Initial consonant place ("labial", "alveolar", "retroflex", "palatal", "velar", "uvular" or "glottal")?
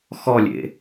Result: velar